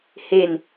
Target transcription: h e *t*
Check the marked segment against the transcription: incorrect: n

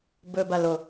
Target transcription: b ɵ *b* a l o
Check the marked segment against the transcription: correct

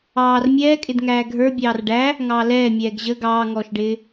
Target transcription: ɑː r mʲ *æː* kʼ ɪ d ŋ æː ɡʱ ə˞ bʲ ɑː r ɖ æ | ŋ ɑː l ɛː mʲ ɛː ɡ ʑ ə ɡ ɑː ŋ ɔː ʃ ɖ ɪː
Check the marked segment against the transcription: incorrect: ɛː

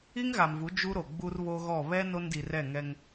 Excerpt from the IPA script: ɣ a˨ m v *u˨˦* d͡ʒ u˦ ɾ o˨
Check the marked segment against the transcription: correct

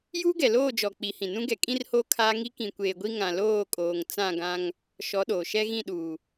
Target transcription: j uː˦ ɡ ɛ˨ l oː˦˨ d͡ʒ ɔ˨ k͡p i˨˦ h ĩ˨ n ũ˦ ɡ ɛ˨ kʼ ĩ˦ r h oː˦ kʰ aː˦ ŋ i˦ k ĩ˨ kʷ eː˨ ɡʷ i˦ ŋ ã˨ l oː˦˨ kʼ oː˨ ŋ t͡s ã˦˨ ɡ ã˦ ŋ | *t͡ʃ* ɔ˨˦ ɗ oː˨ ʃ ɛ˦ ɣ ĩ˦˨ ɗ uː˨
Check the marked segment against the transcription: incorrect: ʃ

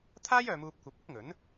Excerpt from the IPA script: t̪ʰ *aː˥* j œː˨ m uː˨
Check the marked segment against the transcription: correct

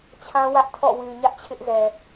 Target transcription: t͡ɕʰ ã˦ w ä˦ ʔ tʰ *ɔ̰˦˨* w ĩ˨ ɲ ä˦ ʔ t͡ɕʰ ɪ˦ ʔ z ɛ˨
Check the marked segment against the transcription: correct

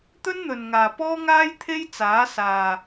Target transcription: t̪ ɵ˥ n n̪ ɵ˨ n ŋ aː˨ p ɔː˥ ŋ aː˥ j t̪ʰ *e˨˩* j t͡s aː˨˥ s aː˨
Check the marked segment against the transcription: incorrect: e˥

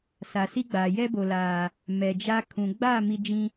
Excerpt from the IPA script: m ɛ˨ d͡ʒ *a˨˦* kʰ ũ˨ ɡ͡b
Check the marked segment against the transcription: incorrect: a˦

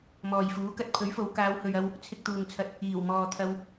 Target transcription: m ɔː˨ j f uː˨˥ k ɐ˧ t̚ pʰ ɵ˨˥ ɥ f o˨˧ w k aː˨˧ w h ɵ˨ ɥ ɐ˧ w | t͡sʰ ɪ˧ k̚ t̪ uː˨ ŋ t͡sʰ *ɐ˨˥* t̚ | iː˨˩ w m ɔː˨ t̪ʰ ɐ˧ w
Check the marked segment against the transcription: incorrect: ɐ˧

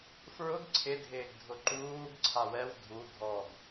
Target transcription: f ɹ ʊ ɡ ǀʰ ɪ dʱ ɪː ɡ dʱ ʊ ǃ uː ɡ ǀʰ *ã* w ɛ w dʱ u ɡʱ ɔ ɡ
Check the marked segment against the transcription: incorrect: a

